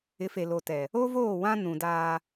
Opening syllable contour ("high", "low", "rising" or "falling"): rising